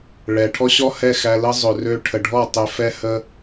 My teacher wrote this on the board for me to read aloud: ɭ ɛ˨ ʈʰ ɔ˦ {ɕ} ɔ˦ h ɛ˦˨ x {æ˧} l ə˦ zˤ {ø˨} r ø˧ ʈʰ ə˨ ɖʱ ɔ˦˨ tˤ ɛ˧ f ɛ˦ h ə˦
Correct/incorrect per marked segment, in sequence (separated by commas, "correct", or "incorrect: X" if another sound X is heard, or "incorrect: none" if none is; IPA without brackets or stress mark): correct, correct, correct